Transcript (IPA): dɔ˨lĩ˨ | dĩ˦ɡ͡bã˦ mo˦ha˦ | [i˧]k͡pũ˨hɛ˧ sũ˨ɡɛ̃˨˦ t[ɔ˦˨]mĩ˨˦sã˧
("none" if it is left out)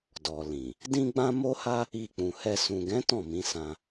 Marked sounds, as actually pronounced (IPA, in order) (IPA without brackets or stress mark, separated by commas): i˧, ɔ̃˦˨